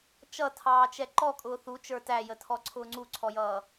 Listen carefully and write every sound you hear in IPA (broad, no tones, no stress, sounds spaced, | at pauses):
t͡ʃ ʌ tʰ ɑː t͡ʃ ɛ ǃ ɔ kʼ ʊː θ u t͡ʃ ə˞ t æ j ə tʰ ɔ ǀʰ ʊː ŋ͡ǀ u ǀʰ ɔ j ʌː